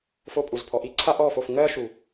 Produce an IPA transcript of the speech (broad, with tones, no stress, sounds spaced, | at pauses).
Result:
f o˥˩ pʼ u˨˩ z pʰ ɔ˩˥ ʔ i˥ ǀʰ a˥ ʔ ɔ˥˩ f o˥˩ f ŋ ɜ˥ ʃ u˨˩